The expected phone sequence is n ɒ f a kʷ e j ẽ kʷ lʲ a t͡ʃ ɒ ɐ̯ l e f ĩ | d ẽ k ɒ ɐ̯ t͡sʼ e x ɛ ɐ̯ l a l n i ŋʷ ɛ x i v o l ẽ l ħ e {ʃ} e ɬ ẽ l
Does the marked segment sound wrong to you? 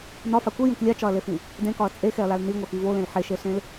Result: no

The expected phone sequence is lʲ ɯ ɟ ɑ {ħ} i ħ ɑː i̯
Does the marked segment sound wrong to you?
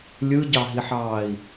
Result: yes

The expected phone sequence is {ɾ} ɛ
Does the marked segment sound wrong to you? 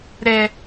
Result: no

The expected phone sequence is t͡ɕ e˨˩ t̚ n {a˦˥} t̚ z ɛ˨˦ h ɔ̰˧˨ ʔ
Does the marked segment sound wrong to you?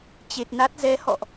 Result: no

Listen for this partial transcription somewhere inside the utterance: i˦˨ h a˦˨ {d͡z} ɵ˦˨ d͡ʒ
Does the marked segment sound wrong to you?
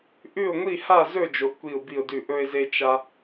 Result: yes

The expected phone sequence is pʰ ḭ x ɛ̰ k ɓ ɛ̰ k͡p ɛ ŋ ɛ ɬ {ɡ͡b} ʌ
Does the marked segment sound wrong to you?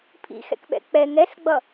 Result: no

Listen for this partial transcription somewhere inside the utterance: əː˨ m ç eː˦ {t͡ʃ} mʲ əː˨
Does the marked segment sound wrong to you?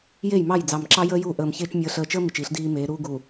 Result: no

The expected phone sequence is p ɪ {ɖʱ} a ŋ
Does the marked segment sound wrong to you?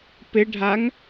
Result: no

